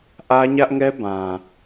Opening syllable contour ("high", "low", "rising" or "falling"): high